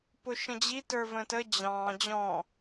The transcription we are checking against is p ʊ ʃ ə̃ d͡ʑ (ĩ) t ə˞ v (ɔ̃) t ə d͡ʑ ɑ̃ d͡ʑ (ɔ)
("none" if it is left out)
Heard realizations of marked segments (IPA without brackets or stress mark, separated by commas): i, ə̃, ɔ̃